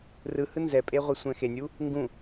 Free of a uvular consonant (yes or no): no